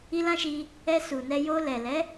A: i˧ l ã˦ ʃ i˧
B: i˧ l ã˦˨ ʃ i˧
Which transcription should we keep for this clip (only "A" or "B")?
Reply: A